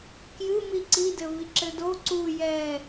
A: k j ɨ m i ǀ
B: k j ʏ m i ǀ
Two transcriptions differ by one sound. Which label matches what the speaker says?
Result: A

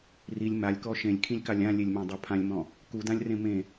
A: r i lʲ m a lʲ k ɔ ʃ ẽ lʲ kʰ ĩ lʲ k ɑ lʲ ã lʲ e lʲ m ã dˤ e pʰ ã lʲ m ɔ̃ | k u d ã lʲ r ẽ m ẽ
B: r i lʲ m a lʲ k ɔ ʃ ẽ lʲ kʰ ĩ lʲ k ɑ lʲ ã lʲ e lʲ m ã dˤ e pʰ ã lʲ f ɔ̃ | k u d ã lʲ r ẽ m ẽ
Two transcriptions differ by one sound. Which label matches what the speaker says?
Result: A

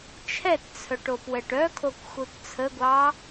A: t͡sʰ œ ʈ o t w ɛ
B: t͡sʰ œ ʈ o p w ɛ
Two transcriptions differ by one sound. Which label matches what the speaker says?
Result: B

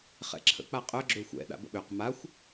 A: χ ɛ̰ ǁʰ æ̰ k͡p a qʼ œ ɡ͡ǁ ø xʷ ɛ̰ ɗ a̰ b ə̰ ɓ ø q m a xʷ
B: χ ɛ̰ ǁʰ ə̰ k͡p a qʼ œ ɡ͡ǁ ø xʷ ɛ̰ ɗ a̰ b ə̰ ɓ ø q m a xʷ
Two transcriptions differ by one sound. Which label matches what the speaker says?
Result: B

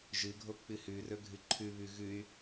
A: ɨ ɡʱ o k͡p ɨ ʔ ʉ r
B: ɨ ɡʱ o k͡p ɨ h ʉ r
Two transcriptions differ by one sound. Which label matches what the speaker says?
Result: B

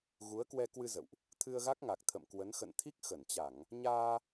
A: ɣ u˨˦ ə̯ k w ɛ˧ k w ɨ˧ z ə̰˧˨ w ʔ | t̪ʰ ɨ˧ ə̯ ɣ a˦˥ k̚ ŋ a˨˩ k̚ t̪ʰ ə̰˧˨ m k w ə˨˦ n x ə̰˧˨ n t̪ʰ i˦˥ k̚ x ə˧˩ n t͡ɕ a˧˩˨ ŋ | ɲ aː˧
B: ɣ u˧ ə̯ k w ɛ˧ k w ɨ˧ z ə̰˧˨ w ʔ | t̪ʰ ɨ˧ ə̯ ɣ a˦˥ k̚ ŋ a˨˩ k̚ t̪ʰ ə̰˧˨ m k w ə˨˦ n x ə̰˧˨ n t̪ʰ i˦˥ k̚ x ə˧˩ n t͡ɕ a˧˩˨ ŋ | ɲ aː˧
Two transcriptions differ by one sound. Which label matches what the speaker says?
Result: A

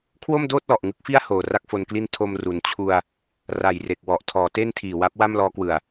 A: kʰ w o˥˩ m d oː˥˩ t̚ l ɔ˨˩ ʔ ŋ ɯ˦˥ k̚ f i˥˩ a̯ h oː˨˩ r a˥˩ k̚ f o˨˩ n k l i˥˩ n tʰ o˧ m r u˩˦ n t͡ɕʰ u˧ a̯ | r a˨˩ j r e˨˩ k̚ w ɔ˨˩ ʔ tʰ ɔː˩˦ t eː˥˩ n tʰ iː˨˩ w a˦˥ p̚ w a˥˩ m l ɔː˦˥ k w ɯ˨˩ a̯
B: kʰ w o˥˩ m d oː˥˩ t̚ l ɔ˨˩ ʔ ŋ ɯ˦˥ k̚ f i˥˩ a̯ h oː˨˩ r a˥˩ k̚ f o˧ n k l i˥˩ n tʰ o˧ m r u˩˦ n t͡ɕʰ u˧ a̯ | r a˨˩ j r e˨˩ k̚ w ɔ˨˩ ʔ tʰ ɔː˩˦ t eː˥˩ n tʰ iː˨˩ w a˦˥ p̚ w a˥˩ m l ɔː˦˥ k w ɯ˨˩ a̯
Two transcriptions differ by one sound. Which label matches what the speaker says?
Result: B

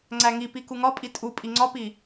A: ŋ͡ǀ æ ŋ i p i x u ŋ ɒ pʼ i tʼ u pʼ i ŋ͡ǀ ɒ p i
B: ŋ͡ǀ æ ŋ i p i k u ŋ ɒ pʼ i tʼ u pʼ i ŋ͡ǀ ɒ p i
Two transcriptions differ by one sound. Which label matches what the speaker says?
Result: B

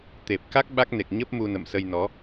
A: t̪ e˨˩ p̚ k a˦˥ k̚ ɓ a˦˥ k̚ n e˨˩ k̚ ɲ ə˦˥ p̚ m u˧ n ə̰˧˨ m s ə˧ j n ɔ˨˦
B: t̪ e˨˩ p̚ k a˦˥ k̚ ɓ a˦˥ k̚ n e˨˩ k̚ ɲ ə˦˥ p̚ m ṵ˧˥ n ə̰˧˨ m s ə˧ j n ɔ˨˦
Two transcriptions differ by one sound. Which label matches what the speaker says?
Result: A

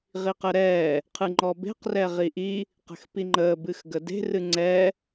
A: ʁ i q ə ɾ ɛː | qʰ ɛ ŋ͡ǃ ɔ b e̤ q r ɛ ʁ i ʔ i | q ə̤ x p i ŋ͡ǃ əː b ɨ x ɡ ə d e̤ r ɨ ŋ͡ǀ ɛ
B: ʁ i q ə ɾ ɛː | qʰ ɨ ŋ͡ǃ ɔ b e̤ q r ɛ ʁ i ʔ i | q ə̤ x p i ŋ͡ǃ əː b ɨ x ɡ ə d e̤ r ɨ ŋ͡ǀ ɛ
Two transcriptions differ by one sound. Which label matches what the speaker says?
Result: B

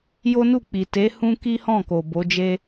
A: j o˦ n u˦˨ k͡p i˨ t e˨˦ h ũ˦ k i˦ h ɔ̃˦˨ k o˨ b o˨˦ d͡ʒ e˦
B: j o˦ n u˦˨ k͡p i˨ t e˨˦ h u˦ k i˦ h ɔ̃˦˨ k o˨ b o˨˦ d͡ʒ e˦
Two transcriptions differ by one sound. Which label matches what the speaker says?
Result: A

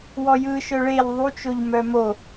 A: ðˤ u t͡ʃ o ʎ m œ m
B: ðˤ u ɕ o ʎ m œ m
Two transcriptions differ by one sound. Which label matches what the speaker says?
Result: A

